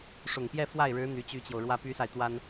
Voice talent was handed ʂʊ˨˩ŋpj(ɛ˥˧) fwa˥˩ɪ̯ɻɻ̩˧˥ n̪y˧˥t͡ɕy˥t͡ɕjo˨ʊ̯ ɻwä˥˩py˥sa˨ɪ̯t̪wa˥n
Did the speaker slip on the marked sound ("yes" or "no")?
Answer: no